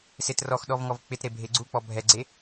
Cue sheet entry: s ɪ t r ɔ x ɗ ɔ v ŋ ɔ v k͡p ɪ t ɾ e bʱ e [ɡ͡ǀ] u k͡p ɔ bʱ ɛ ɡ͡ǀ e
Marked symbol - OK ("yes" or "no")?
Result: yes